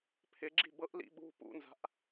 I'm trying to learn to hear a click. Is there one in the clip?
yes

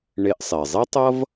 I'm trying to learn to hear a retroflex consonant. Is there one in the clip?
yes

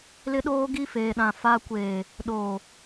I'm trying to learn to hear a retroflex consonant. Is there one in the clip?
no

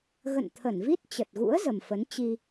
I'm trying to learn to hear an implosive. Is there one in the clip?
no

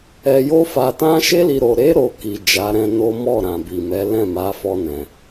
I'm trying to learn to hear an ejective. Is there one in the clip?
no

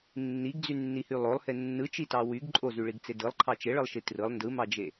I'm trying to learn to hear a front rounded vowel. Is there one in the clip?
yes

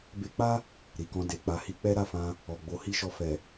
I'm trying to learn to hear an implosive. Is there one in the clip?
no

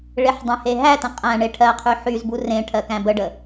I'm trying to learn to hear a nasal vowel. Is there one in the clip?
yes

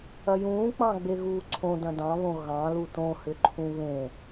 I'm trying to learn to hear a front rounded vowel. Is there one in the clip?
yes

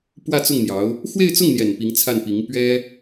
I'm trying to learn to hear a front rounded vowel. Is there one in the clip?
no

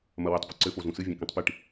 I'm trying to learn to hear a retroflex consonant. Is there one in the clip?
yes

